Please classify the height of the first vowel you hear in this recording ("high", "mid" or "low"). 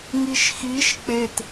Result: high